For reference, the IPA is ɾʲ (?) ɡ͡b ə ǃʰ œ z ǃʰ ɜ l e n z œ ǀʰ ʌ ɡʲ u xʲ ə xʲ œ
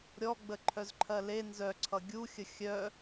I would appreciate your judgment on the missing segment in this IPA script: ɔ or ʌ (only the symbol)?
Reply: ɔ